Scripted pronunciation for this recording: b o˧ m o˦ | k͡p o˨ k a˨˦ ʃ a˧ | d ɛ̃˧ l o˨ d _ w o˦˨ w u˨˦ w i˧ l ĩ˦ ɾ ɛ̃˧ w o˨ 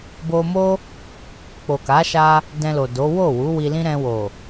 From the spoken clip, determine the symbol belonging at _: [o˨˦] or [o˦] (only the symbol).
o˨˦